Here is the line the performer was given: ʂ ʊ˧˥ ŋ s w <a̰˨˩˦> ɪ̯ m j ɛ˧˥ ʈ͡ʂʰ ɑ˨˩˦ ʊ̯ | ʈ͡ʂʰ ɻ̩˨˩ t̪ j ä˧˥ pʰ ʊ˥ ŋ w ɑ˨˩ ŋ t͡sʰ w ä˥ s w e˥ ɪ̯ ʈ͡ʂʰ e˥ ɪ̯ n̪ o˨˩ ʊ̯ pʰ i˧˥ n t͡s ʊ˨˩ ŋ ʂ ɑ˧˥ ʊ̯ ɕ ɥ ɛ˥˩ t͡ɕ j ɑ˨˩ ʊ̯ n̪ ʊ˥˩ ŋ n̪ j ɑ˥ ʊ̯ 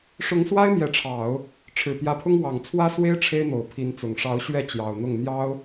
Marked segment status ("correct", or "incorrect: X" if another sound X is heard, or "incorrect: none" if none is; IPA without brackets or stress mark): incorrect: a˥